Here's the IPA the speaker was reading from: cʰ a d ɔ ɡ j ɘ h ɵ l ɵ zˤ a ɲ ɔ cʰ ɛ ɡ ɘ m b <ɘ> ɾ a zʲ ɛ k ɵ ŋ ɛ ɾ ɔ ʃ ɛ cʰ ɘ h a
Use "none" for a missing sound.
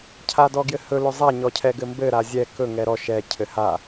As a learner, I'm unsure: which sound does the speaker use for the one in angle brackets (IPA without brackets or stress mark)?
ɘ